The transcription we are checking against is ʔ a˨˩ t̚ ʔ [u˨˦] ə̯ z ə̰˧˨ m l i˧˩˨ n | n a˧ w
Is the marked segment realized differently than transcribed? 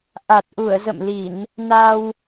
yes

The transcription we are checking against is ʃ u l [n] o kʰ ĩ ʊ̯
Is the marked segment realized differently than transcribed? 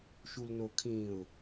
no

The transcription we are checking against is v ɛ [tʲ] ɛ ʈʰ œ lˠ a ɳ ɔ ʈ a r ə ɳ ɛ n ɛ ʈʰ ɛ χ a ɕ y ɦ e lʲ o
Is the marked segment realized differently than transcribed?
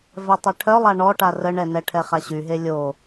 yes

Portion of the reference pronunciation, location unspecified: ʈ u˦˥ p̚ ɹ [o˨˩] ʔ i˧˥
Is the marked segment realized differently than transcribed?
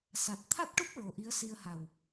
no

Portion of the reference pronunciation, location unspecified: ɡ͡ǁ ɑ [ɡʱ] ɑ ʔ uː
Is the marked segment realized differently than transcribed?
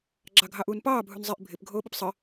no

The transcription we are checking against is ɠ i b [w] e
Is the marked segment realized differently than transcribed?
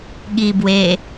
no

